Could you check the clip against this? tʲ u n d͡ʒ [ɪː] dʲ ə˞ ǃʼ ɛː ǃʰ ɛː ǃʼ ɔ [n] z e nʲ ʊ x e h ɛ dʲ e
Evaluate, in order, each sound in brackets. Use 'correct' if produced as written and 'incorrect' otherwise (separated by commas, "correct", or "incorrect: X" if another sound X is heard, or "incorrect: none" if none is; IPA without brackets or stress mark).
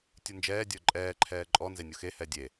incorrect: ɛː, correct